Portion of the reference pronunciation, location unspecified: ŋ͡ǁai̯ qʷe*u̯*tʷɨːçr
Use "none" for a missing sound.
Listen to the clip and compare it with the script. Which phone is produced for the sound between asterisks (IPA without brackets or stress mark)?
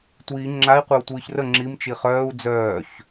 u̯